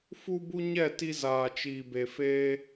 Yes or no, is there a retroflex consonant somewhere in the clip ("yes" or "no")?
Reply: no